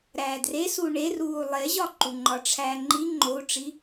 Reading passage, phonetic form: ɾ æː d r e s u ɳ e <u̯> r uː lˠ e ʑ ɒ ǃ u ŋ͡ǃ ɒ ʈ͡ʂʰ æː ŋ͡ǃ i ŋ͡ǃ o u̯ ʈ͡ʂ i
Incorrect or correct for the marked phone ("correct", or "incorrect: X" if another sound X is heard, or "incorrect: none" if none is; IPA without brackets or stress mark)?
incorrect: none